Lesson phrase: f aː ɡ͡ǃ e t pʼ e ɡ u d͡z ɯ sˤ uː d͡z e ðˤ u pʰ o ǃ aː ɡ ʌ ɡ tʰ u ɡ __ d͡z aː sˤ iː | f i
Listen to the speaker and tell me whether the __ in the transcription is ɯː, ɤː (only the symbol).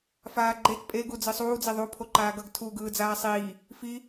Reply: ɯː